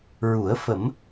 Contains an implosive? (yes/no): no